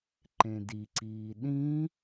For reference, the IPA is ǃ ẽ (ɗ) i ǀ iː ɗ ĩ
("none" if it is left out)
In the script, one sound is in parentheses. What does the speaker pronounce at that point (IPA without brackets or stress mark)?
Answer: d